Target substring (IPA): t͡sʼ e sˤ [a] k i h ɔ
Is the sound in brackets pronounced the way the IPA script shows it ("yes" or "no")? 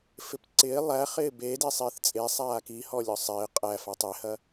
no